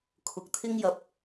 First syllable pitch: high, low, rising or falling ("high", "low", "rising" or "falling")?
rising